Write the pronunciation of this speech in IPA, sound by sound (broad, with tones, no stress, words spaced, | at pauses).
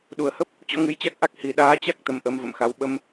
ɗu˨˩ə̯hə˦˥p̚ | t͡ɕɔ̰˧˥ŋɨ˨˦jt͡ɕa˦˥k̚ʔa˦˥k̚ hi˨˩ɗaː˨˦t͡ɕa˦˥k̚ t̪ə˨˦mʔə˨˦m və̰˧˨mxa˨˦w ɓə˧m